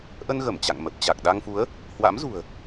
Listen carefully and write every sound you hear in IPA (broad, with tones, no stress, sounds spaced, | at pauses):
ʔ ə˧ n ɣ ə˧˩ m t͡ɕ a̰˧˨ ŋ m ə˨˩ p̚ t͡ɕ a˨˩ k̚ ɗ a˧ ŋ f u˨˦ ə̯ | h w a̰˧˥ m z ṳ˨˩ ə̯